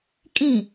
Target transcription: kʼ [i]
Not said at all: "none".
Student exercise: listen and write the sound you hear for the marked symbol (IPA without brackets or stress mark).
ĩ